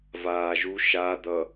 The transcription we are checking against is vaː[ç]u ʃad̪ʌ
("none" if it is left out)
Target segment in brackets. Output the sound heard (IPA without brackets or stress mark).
ʒ